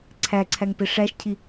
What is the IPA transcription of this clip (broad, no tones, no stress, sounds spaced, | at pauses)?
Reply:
ǀʰ æ ǀʰ æ ŋ p e ʂ æ ʃ cʰ i